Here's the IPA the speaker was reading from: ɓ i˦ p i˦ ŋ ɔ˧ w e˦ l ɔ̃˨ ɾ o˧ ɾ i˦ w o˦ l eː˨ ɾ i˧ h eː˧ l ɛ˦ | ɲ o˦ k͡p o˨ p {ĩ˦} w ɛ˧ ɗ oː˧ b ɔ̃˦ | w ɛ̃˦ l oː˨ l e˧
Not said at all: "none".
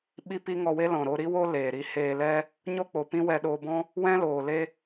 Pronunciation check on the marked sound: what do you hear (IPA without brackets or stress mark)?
ĩ˦